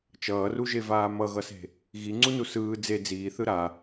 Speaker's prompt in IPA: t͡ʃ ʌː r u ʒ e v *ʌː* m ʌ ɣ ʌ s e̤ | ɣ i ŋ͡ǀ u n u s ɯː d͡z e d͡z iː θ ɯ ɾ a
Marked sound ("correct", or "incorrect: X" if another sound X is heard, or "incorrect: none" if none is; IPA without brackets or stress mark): incorrect: aː